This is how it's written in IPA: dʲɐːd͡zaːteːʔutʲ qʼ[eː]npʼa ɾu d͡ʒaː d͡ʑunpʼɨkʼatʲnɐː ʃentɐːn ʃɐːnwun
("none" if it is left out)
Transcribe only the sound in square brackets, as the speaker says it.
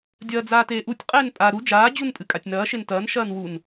eː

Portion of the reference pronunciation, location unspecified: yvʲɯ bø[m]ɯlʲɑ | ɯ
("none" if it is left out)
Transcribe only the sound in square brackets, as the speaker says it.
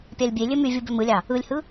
m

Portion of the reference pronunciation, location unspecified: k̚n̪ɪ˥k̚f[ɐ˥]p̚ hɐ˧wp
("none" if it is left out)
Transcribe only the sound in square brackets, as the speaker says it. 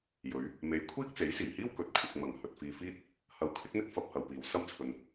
ɐ˧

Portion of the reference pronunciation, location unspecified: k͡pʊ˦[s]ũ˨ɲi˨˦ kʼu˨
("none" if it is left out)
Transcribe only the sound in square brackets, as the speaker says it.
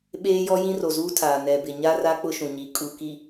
ʃ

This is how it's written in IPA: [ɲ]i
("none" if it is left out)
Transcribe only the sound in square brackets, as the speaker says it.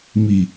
m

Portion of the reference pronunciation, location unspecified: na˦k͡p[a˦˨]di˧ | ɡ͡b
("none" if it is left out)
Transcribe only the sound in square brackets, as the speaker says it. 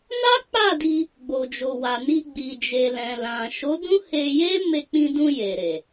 a˦˨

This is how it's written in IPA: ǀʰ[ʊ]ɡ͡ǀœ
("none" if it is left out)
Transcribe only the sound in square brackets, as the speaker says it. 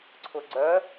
ʊ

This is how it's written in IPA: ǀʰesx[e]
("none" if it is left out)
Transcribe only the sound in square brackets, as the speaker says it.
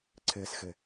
e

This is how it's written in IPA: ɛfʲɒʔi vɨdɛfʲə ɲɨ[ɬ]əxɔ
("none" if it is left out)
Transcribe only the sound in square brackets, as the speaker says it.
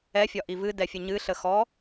ɬ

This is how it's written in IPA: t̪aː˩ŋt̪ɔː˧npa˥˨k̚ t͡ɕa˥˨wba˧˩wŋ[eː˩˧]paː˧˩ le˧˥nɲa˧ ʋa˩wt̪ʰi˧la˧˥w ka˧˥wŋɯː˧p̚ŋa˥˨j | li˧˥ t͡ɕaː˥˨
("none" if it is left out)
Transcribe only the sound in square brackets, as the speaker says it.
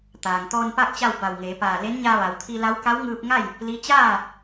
eː˩˧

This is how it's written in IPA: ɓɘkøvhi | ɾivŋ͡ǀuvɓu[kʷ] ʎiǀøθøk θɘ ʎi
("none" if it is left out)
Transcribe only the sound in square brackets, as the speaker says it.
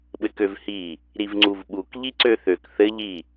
k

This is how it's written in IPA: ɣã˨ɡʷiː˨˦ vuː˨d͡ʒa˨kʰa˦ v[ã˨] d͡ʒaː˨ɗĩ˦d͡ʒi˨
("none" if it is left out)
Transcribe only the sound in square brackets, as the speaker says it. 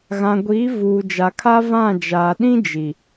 ã˦˨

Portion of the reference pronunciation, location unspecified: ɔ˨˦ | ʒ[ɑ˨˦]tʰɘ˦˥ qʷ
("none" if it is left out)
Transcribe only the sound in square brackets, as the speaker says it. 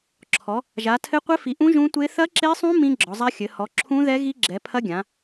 a˨˦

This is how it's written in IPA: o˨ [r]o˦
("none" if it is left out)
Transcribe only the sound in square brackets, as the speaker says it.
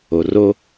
r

